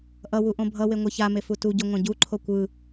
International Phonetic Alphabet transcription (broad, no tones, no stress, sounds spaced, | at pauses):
ʔ ʌ w u ʔ õ bʱ ʌ w e ŋʷ ɛ ç a m e f u t u ɟ o ŋʷ ã ɟ u ǃʰ o kʷ ɯ